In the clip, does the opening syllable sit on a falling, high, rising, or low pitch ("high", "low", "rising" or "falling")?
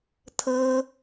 high